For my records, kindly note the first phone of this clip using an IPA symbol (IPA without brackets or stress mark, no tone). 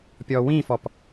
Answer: pʲ